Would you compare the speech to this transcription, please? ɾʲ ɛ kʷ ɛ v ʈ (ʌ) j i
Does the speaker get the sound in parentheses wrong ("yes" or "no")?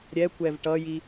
no